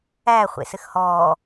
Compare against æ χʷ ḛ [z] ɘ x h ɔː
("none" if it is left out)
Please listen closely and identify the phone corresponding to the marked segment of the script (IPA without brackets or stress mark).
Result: s